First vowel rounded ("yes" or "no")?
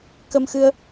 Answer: no